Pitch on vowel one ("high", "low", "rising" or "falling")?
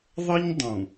high